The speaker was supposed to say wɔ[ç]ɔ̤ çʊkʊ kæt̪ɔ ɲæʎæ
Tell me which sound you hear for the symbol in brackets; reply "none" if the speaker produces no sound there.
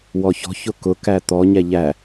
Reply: ç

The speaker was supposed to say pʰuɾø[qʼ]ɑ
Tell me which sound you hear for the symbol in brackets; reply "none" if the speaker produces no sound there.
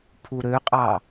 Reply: qʼ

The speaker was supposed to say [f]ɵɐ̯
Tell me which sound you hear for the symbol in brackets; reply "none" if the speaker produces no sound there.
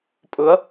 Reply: pʼ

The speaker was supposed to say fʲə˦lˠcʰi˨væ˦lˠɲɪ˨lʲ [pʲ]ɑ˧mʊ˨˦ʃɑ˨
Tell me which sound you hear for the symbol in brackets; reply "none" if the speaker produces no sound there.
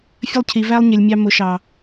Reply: mʲ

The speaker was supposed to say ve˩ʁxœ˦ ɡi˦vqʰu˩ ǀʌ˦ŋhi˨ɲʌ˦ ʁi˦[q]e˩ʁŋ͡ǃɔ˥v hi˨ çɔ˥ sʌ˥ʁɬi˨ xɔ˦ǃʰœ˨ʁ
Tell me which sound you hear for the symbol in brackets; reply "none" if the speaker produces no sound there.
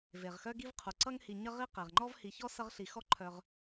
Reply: q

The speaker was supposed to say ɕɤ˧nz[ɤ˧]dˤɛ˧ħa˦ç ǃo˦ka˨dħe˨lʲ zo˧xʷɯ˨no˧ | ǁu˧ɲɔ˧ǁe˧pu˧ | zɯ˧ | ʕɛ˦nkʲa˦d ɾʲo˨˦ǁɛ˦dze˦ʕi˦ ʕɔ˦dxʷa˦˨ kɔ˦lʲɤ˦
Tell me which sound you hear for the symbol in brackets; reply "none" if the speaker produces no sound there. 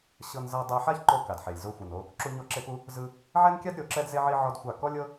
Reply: ɤ˧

